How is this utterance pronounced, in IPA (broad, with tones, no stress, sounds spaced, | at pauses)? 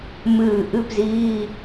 m ɨː˧˩ ʔ ɨ˧˥˧ p z iː˧˥˧